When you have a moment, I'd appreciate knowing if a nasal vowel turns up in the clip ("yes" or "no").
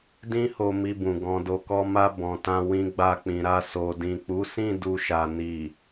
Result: yes